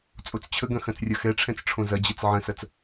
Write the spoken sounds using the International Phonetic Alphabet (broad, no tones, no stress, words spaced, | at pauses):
t͡sʼot͡st͡ɕʰəɡɐ̃ xɐ̃t͡srʲɐxɛʈ͡ʂʰɛ̃t͡s ʈ͡ʂʰõzɐd͡ʑɛt͡s ʕə̃sɐt͡s